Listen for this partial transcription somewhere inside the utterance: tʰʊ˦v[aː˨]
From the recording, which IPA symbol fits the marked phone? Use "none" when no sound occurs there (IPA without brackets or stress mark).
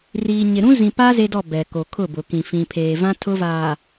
aː˨